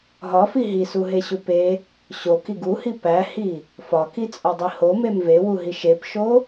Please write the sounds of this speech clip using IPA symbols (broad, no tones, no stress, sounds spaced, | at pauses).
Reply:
ɦ ɒ f i ɦ i s u ɦ e ɕ u p e | ɕ o k i ɡ u h i p æ h i | f ɒ k i t͡sʼ ɒ dˤ i h o m e m v e w u ɦ i ʃ e p ʃ o